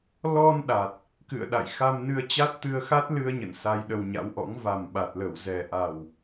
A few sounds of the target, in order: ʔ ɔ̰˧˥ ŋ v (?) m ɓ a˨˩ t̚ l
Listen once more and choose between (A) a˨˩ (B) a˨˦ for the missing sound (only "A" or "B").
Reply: A